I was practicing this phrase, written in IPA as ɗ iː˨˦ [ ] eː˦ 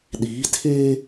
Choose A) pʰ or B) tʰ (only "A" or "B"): B